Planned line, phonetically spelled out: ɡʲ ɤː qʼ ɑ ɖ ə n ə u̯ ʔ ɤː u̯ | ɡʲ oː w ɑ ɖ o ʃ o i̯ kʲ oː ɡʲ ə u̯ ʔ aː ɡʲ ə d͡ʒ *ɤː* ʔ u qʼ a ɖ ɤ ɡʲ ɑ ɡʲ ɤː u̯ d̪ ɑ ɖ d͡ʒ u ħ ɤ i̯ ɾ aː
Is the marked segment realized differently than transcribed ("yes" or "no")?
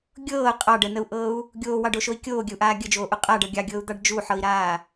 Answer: yes